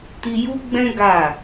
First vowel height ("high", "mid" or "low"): high